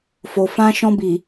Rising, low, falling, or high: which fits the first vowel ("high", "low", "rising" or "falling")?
low